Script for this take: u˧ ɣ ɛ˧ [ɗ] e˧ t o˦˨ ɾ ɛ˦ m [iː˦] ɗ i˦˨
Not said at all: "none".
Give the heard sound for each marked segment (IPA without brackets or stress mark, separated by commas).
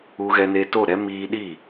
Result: n, iː˧